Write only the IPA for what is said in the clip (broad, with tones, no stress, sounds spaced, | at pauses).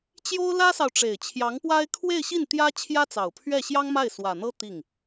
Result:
t͡ɕ j o˥ ʊ̯ l ä˥ s ɑ˨ ʊ̯ ʈ͡ʂ e˨˩ ɪ̯ t͡ɕʰ j ɑ˧˥ ŋ p w a˥ ɪ̯ kʰ w e˥˧ ɪ̯ ɕ i˥˩ n t̪ j ä˥ t͡ɕʰ j ä˥ t͡s ɑ˨˩ ʊ̯ pʰ ɥ ɛ˥˩ ɕ j ɑ˥ ŋ m a˥˩ ɪ̯ s w ä˨˩ n̪ ɤ˥ t̪ i˥˩ ŋ